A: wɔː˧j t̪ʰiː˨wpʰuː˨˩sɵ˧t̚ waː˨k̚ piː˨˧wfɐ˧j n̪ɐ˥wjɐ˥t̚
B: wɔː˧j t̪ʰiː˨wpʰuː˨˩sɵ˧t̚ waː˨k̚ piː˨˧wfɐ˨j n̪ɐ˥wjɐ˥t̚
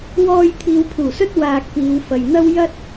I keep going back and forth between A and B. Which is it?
B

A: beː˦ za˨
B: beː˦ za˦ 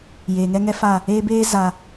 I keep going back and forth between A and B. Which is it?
A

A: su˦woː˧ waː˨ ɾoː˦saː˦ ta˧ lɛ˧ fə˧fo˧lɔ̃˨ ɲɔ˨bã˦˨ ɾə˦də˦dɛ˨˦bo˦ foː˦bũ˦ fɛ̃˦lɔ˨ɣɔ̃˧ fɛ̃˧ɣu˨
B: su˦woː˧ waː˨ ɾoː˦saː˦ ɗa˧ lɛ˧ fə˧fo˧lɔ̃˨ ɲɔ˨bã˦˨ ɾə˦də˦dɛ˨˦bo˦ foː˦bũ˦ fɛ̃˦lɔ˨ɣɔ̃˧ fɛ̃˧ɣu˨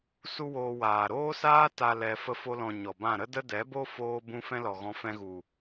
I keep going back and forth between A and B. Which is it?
A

